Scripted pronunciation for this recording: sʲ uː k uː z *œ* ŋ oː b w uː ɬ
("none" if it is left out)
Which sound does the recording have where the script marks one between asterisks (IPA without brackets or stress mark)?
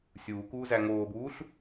æ